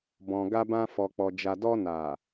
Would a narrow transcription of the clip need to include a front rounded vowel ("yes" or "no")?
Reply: no